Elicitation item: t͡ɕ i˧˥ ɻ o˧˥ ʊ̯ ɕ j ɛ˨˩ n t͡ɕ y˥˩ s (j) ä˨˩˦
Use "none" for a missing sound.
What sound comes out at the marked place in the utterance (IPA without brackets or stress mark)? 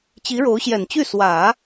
w